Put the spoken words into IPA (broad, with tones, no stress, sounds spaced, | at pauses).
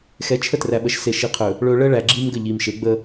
x ɛ˨˦ t͡ʃʰ ə˦ t r æ˨ ɓ ə˨ ʃ s e˨ ʃ i˨ qʰ ɵ˨ | ɭ ɵ˨ ɭ ə˦ ɭ æ˨ ɡ͡ǁ i˦ m ɡ ə˦˨ ʎ i˨ m ʃ e˨˦ ɡ͡b ə˦